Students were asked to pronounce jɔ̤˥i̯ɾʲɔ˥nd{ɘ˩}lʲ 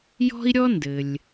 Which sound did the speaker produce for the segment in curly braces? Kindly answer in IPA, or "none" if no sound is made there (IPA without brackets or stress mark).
ɘ˩